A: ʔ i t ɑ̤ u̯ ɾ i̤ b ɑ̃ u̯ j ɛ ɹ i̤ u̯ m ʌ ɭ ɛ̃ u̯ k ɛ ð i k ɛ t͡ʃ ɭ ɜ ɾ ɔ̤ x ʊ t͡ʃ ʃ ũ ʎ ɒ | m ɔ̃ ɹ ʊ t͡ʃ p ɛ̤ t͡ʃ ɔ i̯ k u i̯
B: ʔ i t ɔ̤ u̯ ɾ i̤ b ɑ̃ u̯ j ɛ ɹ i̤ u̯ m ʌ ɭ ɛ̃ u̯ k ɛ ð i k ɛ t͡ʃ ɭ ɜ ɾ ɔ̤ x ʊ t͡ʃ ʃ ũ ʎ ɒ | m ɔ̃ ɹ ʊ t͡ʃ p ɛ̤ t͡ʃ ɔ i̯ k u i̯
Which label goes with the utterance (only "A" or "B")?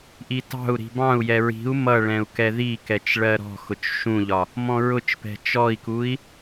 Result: A